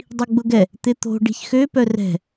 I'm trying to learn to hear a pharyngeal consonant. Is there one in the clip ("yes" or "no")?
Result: no